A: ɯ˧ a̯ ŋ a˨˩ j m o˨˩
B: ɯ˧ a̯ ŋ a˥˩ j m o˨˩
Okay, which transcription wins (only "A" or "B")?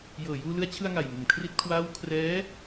A